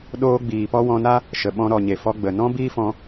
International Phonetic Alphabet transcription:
ɗ oː˧ ɡ͡b iː˨ p ɔ˧ w ɔ̃˧ n a˦ | ʃ ə˨ ɓ ɔ̃˧ ɾ ɔ˨ ɲ e˨ f ɔ˧ ɡ͡b ə˨ n ɔ̃˦ b iː˦ f ɔ̃˧

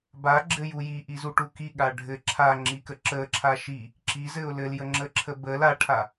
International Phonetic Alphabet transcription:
b a ɡ͡ǁ ɘ j u j i ʔ i z u ʈ u k i ɠ a ɖʱ ɘ ǁʰ a ŋ͡ǁ i k ə ǁ ə ǁʰ a ʃ i | ǁ i z ɘ ʊ̯ l ɘ l j ə ŋ͡ǁ ə ǁʰ ə b ə l a ʈʰ a

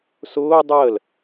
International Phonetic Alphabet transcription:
s ʊː dˤ əː l

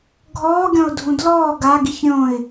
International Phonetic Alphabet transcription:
ɡʱ ɔː ɡʲ ɔ̃ ʊ̯ dʱ ũ d l ɔː ɡ a ɡ i ç ɾʲ õ ɪ̯

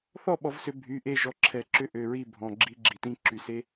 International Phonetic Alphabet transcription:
θ ɔ˥˨ ɓ ɔ˨˩˦ v s ʏ˨˩˦ bʱ y˩˧˩ ʔ e˥˨ ʒ ɔ˩˧˩ ǁʰ ɛ˨˩˦ ǁ ʏ˦˥ ʔ ø˩˧˩ ɹ i˥˨ bʱ ɔ̃˩˧˩ ɡ͡ǁ i˦˥ ɡ͡ǁ i˩˧˩ t ĩ˦˥ ǁ y˨˩˦ s e˦˥

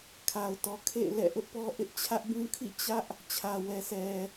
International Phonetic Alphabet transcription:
kʰ a˨ ʊ̯ t ɔ˨ kʰ ḛ˦˨ ɪ̯ l ɛ̰˦˨ ʔ ʊ˦ ʔ p ɔ˦ ʔ ɪ˦ ʔ t͡ɕʰ ä˦ ʔ b ũ˦ kʰ ḭ˦˨ t͡ɕ ä˦ ʔ | t͡ɕʰ ä˨ w ɛ˨ sʰ ɛ˨

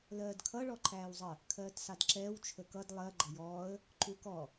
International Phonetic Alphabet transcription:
l ɜː d kʰ ʌ ɭ ɔ ǃʰ æː w zˤ ə | kʰ ɜː t s ɑ d ǁ ɛː w t͡ʃʰ ə k ʌ d lˠ ɜ ɡ͡ǃ ʌ j ɔː ə̯ | ǃ u k ɔ

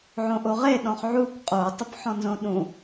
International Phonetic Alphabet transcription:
ʕ õ ʔ o ʁ e ɗ ɔ̃ χ ʕ u kʷ qʼ o tˤ ʊ p ħ ɔ̃ n z õ ɗ ũ

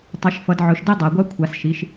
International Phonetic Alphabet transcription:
tˤ i˩˧ ʃ f ʌ˩˧ d ʕ ɵ˩˧ ʃ d e˦ dˤ a˩˧ ɡʷ a˦ kʷʰ a˩˧ s ʃ i˩˧ ʃ

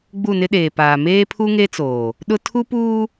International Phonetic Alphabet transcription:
ɡ͡b u˦˨ n ɪ˦ ɗ eː˨ p aː˨ m eː˦ pʰ u˦ ŋ e˦ t͡s oː˨ | ɗ ʊ˦ tʰ u˦ p uː˦

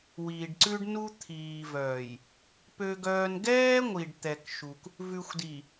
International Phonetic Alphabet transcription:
w i˨ ɖ ǀ ʉ˦ ɖ n u˦ t̪ʰ iː˨ v œː˨ j | p ø˦ ɡ œː˦ n ɡ ɛː˦ ŋʷ i˨ ɖ t̪ ɛ˨ k ʃ u˨ k | v ʉ˨ xʷ d i˨

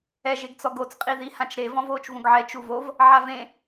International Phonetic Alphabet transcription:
ɛ ʒ e ɡ t͡s ɔ ɡ o t͡s qʼ i ð i h ã t͡ʃ ɾ e v ɔ̃ v oː t͡ʃ v ũ ɡ ʕ ɛ t͡ʃ u v o v | ʕ a v ẽ

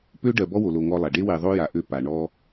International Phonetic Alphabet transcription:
p ø˦ ɖ ɜ˨ b ɔ˦ w o˨ l o˨ ŋ ɔ˦ lˠ a˨ ɖ e˦ w e˨ ðˤ o˦ j a˨ ʔ ø˦ p a˨ ɳ ɔ˦

